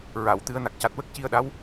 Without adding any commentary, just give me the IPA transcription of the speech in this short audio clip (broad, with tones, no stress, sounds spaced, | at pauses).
ɹ a˨˩˨ w t̪ ɨ˨˩˦ ə̯ n a˨˩ k̚ c a˨˩ t̚ w ə˦˥ k̚ c i˧ ə̯ ɗ a˧˥ w